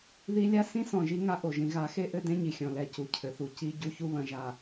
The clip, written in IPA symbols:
ði˦ lʲa˦sĩ˦ sɔ̃˨ʒi˦ ŋa˦ʔo˨ ʒĩ˨ɣa˨˦xe˦ ʔɘ˦dẽ˦ɲi˨ xʲɔ̃˨lɛ˨ cu˨cʰɘ˨θu˨ ci˦ ɟu˦çu˦βɐ̃˨ʒa˨

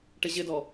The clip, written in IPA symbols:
ʈɪʑɪdɔ

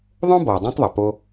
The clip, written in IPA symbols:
ðˤõ˥bɔ˩ dˤẽ˥tˤðˤɐ˩po˧

